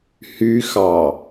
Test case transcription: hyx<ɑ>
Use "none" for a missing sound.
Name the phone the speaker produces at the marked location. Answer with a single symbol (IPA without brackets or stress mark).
ɑ